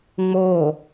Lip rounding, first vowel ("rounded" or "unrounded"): rounded